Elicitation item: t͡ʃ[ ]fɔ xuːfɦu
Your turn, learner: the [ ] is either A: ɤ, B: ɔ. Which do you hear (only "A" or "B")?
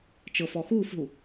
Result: A